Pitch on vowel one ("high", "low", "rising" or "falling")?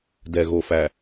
low